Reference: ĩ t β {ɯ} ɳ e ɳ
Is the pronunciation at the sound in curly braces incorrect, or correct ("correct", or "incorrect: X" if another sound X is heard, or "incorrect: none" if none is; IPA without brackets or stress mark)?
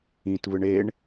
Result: correct